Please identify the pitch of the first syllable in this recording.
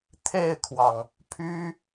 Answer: falling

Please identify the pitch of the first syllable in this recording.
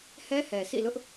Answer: high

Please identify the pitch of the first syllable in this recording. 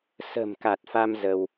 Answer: low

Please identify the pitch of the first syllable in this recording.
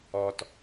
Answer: low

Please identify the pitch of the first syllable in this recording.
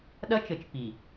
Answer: high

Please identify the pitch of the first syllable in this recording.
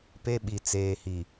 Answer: high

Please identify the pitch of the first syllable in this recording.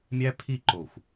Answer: high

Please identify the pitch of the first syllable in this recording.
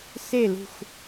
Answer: falling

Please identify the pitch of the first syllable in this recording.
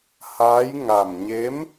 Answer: rising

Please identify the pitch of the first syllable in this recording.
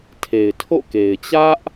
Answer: low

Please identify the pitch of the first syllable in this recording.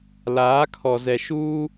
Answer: rising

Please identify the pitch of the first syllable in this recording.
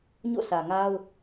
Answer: falling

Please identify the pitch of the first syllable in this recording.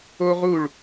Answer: high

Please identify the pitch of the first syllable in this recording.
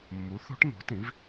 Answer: rising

